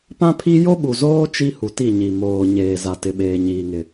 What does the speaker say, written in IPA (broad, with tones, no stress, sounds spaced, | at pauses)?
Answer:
p ã˦ pʰ i˦ j o˦ ɓ u˨ z oː˦ t͡ʃ i˦ h u˨ t i˦˨ ɲ i˨ m oː˨ ɲ eː˨ z a˨ t ɪ˨ ɓ eː˨ ɲ iː˨ ŋ ɪ˨